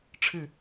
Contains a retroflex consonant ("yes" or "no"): yes